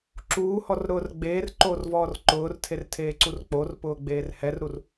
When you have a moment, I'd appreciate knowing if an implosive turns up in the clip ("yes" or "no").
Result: no